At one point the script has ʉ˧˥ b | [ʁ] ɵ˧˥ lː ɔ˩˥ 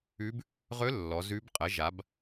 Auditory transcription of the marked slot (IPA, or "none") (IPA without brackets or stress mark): ʁ